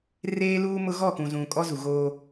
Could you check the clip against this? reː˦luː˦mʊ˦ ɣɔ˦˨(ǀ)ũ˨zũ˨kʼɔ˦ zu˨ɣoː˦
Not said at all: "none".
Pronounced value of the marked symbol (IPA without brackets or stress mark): k